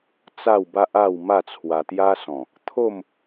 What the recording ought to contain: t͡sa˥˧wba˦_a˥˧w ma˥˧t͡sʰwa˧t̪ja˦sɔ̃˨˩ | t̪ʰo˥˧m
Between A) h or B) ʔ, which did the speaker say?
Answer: B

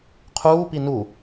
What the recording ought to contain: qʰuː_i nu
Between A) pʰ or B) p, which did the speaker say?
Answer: B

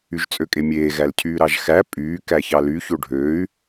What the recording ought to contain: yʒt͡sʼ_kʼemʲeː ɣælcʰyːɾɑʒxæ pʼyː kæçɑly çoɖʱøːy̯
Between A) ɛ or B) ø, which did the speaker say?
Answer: B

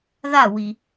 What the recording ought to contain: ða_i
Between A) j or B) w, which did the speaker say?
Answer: B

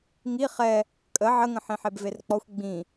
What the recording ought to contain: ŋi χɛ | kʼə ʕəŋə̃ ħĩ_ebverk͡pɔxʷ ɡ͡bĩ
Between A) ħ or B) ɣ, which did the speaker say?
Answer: A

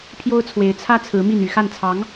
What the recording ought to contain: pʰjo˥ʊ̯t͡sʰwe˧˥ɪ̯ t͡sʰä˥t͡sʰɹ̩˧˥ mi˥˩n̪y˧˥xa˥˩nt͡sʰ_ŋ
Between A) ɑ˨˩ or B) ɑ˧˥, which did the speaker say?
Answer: B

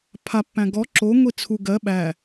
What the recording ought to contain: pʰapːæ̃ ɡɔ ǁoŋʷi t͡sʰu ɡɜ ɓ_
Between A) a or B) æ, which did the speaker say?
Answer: B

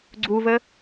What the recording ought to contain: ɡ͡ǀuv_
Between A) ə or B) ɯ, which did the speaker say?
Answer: A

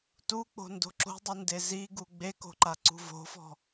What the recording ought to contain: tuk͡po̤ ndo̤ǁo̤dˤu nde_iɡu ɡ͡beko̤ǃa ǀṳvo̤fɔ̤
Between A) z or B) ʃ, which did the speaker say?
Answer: A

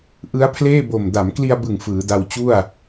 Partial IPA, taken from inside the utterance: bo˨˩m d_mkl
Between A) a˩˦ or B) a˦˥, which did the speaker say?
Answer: A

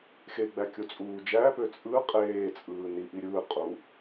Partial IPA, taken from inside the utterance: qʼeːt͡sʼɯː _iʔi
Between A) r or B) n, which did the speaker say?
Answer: B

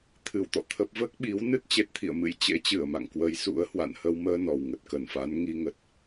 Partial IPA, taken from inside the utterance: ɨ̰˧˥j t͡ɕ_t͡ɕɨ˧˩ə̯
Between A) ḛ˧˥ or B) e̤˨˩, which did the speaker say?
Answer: A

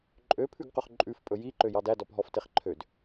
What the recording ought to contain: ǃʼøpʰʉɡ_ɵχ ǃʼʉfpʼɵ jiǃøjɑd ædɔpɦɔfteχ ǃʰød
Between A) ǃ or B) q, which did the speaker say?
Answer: B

